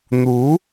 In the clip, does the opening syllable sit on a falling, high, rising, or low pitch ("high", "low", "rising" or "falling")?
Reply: rising